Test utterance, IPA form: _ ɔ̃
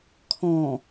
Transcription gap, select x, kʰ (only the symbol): kʰ